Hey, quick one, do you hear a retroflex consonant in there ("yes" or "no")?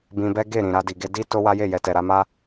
no